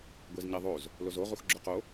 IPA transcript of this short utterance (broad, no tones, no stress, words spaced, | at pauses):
ɡʷezɲɛðˤoz | lozo ʁuxɡ͡ǁʊqo